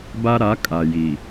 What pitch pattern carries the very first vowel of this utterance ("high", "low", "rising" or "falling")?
high